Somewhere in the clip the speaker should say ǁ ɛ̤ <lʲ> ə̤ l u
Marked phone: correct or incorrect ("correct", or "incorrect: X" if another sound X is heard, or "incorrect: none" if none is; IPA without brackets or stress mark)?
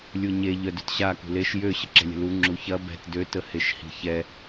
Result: correct